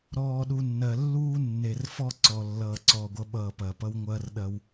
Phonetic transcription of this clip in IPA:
ɾɔː˨ɗu˨ nːɜ˨lːuː˦ nːe˨r fɔ˦ǀɔ˨lːʌː˨ ǀɔː˨ɡʷʌ˨˦ɓʌː˨pɐ˨ pʌ˦wŋʷɐː˦rɗɐ˦w

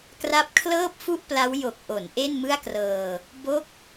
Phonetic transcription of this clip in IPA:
kra˦˥p̚kʰlɤː˥˩p̚fu˥˩ʔpla˦˥w jo˨˩k̚ʔo˩˦n ʔe˥˩nmɯ˥˩a̯krɤː˧ | bo˦˥k̚

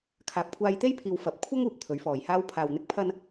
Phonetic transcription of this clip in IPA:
kʰaː˨p̚kʷʰaː˧jt̪e˥jpʰiː˨w fɐ˨p̚kʷʰɐ˥ŋ uː˧p̚t̪ʰɵ˨˥ɥfɔː˨jhaː˥w pʰaː˨wn̪ɪ˧k̚pʰɐ˧n

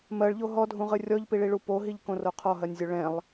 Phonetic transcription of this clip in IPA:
mɜɭʎo ɦɔdʱũʁɨ rʲɔʎpiɭiɭu poɦiʎkõro qʰɔɦɜnʲzʲo ɭɛ̃lˠ

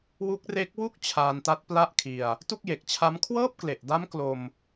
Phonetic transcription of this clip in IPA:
wu˦˥k̚re˦˥k̚ wu˥˩k̚ t͡ɕʰaː˧nta˦˥t̚ pla˥˩ʔkʰi˧a̯ | tu˥˩k̚je˨˩k̚t͡ɕʰa˦˥m kʰwɤː˥˩p̚kle˨˩ʔda˦˥m klo˧m

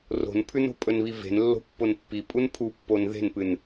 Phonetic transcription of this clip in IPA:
ro̤npʰʉno̤ pʼɵnβive̤n lːo̤pːonpːi pʼunpʰupːon ðe̤npɨn

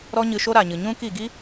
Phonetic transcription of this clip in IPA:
ɾɔ˦ɲɨ˧ʃo˦ ɾa˨ɲɨ˨ɲũ˦ki˦˨ ɡi˦

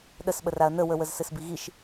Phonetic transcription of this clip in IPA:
ɗəsɓə raɐ̯nəwəwəz sɘsbiɣiʃ

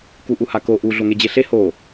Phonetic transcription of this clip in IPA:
kuʔuhako ʔu ɮoŋed͡ʑeɬe ho

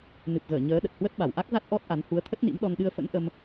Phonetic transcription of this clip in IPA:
nɨ˨˩p̚ɣəː˧˩ ɲəː˨˦ɗə˨˩t̚hwə˦˥t̚ ɓa˧˩wʔa˦˥k̚za˦˥t̚ ʔɔ˦˥t̚ʔa˨˦n hu˨˦ə̯t̪ʰə˦˥t̚nḭ˧˥m ɗɔ˧nɗɨ˧ə̯fə̰˧˥n ʔə˧m

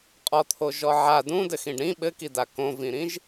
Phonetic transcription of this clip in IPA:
qʼɔt̪ʰo ʒɔʕa dũdɘ xĩɖɾĩ ɓɘkida kõvĩɾĩʒ

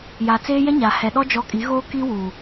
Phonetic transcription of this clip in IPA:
ja˨t͡seː˦jɛ˦ ɲa˨ hɛ˨ɗɔ˦ d͡ʒɔ˦ kʼi˨˦ɣoː˦ ki˦wuː˨

